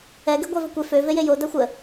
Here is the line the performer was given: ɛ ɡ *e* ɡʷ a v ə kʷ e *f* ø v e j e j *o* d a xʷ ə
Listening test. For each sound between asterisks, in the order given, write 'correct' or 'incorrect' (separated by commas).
correct, correct, correct